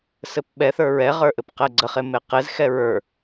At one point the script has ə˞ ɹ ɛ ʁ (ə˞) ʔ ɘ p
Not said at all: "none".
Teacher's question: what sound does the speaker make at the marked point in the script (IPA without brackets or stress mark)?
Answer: ə˞